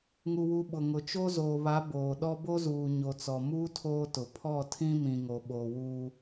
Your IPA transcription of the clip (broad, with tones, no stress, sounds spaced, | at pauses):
ŋ u˨ w u˨ ɓ ʊ˨ ŋ ʊ˨ t͡ʃ o˦ z oː˨ β a˨˦ b oː˨ ɗ ɔ˦ b o˦ z uː˨ ɲ o˨ t͡s ɔ˨ m uː˦ tʰ oː˦ t ʊ˨ pʰ ɔ˦˨ tʰ ĩ˦ m ĩ˨ ŋ o˨ ɓ oː˨ w uː˦